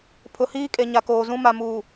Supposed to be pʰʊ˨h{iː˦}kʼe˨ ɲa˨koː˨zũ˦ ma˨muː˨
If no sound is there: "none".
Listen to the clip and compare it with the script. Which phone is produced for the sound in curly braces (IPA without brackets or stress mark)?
iː˦